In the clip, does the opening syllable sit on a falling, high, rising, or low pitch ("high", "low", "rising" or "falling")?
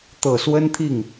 low